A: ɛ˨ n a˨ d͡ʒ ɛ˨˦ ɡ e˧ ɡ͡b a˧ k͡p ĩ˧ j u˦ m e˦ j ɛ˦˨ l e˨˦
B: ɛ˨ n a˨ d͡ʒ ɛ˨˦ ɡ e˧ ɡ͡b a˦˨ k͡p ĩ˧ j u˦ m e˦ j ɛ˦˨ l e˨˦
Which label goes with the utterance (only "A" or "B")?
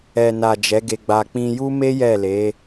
A